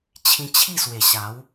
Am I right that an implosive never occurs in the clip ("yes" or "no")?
yes